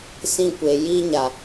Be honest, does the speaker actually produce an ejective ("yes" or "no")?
no